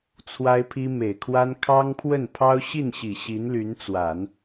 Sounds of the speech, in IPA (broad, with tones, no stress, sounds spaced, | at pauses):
t͡sʰ w a˥ ɪ̯ pʰ i˥ m e˨˩ ɪ̯ kʰ w a˥ n kʰ ɑ˥ ŋ pʰ w ə˥˩ n pʰ ɑ˥ ʊ̯ ɕ i˥˩ n ɕ i˨˩ ɕ i˧˥ n l y˧˥ n t͡s w a˨˩˦ n